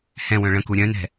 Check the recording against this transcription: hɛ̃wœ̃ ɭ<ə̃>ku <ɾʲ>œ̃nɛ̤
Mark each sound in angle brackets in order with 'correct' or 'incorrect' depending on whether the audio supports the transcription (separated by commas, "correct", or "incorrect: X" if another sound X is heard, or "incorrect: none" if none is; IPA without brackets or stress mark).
correct, correct